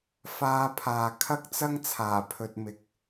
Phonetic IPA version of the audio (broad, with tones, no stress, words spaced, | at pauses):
faː˧pʰaː˨ kʰɐ˥k̚t͡sɐ˥ŋ t͡sʰaː˨˩pʰɵ˨t̚ mɪ˨k̚